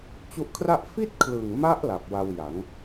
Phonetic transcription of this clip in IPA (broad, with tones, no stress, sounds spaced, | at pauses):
t͡ɕ u˦˥ ʔ kʰ r a˥˩ ʔ f i˥˩ t̚ kʰ l ɯ˨˩ ŋ m a˦˥ ʔ l a˨˩ p̚ w a˧ w j a˩˦ ŋ